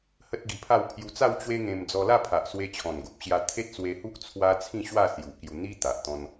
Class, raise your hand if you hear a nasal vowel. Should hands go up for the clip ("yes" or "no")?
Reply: yes